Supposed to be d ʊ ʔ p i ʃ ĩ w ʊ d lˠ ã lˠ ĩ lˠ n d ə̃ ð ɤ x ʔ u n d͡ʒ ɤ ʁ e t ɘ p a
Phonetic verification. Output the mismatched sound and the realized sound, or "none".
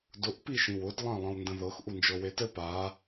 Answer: ʁ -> w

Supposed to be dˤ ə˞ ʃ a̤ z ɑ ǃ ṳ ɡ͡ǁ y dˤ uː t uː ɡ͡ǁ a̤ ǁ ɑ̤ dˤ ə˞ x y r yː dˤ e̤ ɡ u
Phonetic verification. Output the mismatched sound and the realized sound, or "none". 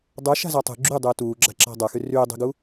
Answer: ǃ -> tˤ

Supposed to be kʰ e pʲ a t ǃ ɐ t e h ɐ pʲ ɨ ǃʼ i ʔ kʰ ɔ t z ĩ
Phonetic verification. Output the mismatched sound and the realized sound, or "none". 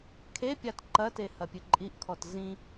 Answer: none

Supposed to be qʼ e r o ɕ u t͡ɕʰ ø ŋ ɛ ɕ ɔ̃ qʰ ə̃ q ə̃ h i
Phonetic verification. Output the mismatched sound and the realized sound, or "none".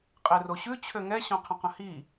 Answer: u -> ʉ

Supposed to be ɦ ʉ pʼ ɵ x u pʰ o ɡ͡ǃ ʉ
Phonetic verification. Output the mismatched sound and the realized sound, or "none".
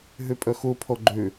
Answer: none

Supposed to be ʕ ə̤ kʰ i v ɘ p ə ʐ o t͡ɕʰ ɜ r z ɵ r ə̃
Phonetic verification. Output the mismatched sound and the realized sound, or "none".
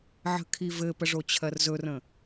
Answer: none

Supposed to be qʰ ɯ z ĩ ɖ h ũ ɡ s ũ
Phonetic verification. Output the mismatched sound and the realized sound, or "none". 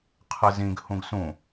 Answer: ɖ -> ɡ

